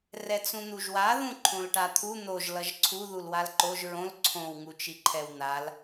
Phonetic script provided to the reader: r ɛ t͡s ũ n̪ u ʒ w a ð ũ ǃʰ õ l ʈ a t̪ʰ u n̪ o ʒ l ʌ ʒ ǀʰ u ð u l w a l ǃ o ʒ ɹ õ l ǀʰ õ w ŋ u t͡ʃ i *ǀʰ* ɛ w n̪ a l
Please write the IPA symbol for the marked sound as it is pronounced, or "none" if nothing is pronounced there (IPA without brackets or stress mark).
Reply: ǃʰ